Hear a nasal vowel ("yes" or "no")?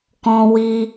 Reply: yes